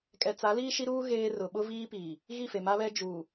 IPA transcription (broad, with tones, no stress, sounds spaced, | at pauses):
kʼ ɛ˨ t͡s a˨˦ l iː˦ ʃ i˦ ɾ uː˦ ɣ eː˦ r ʊ˨ ɓ ʊ˦ v iː˦ p iː˨ | ɣ i˦˨ f e˨ m a˦ β ɛ˦ d͡ʒ uː˨